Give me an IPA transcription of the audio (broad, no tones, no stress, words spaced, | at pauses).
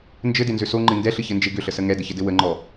nd͡ʒɘdenzʏ soŋ͡ǃɨ ndɛɬɨçɘnd͡ʒe ɡʏɬəsə ŋɛdəçɘdɘ wəŋ͡ǃɔ